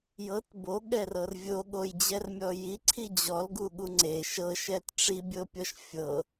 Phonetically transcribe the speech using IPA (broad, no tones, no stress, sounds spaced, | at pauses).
j ɤ t b o ɠ ɛ r ɤ r vʲ o ɠ o j d͡ʑ ɛ r mʲ ɔ j i ǀʰ i d͡ʑ ɔ l ɡ u ɠ u ŋ͡ǀ e ʃ ɤ ʃ ɛ t ʈ͡ʂ i bʲ ɤ pʲ ɔ ʃ fʲ ɤ